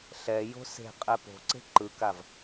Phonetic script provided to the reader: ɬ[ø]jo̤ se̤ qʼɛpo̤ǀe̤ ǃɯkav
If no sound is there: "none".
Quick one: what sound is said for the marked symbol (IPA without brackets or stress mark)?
ɛ